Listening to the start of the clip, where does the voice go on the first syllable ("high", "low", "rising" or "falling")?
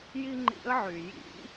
high